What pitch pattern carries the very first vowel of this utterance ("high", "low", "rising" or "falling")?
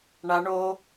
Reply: high